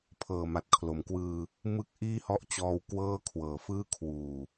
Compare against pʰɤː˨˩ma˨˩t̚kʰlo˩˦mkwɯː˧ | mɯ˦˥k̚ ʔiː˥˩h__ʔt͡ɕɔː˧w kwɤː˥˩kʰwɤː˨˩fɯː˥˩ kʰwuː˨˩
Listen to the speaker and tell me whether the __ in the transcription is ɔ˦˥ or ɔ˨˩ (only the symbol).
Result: ɔ˦˥